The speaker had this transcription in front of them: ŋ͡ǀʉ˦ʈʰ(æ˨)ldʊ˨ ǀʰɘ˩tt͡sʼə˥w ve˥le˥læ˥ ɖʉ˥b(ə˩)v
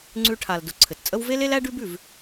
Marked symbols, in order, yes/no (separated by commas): no, no